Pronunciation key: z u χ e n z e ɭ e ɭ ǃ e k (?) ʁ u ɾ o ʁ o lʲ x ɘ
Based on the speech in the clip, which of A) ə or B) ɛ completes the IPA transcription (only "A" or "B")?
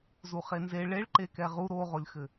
B